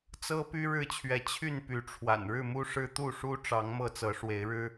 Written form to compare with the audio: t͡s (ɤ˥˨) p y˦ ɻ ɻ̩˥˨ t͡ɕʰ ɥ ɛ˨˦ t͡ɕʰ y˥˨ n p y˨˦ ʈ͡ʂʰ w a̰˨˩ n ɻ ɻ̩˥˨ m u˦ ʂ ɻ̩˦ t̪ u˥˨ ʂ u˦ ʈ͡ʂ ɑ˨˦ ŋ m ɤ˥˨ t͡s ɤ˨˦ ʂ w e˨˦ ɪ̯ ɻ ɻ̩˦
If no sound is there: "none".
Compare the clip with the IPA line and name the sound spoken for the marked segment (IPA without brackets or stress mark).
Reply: ɤ˦